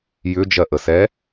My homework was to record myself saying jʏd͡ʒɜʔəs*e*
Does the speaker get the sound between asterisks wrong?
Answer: yes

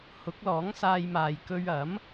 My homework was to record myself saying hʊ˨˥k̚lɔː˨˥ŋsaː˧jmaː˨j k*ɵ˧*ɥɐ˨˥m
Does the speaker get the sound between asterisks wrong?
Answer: no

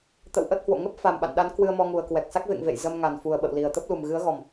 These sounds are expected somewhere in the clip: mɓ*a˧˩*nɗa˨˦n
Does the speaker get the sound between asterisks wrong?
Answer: yes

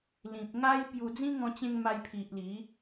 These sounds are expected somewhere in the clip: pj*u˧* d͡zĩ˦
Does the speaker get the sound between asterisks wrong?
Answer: no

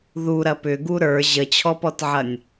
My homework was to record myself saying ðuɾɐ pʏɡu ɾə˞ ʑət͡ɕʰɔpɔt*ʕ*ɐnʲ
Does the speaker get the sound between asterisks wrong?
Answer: no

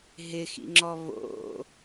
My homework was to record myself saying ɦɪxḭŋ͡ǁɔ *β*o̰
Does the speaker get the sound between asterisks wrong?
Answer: no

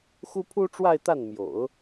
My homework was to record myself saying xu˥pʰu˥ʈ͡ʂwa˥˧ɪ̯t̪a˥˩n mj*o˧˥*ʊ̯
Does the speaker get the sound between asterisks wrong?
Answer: yes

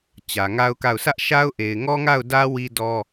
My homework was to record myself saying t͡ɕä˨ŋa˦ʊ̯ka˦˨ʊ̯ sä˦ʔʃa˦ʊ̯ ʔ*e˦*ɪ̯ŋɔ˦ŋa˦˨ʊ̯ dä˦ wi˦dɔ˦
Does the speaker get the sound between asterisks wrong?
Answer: yes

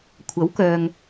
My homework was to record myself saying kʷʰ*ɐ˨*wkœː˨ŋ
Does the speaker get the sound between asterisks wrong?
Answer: yes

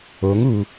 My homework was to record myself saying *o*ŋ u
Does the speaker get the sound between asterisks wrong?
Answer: no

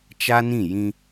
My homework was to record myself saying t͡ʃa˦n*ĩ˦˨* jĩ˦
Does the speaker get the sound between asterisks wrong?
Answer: no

